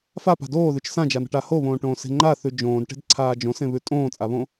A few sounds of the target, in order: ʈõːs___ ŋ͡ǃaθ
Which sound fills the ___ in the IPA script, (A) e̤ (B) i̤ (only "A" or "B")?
A